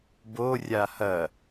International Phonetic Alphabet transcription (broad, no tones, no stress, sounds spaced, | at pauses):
b o rʲ a h ɐ